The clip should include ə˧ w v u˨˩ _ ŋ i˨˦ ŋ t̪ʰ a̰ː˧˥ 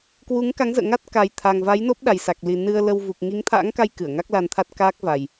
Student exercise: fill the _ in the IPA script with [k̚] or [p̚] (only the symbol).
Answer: k̚